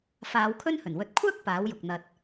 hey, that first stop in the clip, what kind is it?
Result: aspirated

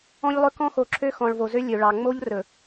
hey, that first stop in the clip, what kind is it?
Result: plain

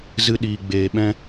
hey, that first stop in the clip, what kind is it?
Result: implosive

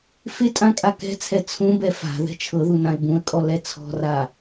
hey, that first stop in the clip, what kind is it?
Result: ejective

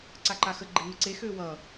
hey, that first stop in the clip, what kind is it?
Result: click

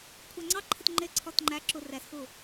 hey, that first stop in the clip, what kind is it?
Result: aspirated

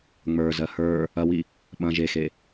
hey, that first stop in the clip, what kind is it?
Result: implosive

